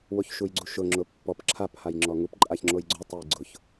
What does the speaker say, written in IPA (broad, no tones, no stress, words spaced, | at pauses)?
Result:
woçʃujɡ͡ǀuʃʊ ŋ͡ǁʊpːɔp ǁʰap hajŋ͡ǁɔŋup ǃʼaçŋ͡ǁojɡ͡ǀo tˤejɡ͡ǀʊç